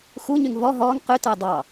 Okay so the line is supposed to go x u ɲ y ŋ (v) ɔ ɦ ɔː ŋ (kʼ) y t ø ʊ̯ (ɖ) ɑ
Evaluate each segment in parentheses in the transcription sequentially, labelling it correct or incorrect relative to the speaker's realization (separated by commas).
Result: correct, incorrect, incorrect